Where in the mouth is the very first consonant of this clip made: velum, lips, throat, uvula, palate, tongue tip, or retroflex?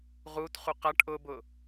uvula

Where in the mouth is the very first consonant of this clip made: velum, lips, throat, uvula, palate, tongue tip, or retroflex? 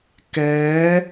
velum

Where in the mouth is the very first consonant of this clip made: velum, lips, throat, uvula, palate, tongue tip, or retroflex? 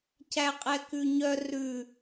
palate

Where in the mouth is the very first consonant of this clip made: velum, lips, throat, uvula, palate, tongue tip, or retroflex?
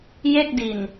palate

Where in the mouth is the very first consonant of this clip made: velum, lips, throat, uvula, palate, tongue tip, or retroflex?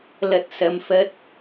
tongue tip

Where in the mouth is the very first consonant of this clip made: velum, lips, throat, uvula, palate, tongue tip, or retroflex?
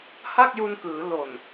throat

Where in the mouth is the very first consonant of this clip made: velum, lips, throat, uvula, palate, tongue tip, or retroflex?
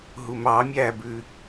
throat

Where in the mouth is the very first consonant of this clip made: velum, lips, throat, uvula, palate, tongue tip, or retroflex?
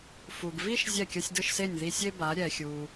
lips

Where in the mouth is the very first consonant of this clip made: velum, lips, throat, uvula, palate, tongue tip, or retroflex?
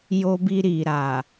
palate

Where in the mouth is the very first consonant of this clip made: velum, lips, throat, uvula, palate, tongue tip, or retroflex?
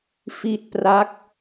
lips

